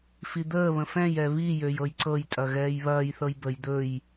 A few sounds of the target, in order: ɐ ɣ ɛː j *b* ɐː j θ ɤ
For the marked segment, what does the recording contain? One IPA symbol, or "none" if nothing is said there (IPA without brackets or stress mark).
β